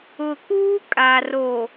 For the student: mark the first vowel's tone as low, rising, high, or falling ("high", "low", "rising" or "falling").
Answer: low